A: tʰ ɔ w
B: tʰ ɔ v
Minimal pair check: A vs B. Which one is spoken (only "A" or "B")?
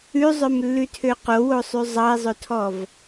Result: B